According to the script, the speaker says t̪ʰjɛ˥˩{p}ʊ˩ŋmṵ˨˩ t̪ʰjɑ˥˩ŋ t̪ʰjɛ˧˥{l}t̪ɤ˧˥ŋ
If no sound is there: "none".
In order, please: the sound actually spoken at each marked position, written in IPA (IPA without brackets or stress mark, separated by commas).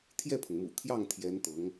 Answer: pʰ, n